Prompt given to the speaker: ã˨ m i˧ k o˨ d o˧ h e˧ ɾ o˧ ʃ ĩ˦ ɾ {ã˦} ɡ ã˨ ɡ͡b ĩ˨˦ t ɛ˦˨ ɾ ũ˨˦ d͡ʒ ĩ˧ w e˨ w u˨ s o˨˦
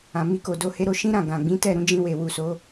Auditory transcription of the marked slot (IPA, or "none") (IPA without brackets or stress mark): ã˦˨